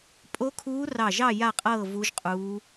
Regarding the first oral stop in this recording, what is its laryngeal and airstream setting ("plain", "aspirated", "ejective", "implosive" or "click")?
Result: ejective